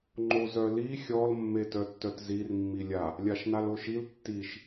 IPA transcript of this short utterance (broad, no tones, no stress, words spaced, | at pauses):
ŋ͡ǃozœli xʲɔl mːetœtːœtzir mːilʲa | lʲaʃnaloʃil tːiʃ